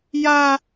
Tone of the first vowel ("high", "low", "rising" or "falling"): high